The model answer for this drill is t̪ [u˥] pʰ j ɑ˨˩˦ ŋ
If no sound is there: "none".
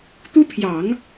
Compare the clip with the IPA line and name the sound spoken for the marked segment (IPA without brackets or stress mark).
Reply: u˥